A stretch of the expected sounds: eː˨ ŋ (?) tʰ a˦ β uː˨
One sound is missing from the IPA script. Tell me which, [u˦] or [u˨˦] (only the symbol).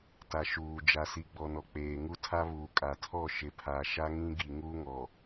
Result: u˦